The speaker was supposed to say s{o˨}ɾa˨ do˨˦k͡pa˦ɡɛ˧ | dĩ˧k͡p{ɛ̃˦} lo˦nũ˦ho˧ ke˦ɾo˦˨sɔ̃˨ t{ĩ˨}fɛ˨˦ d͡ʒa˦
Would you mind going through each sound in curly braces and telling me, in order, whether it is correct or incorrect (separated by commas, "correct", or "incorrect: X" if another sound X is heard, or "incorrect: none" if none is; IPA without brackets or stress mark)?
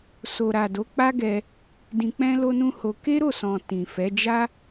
correct, correct, correct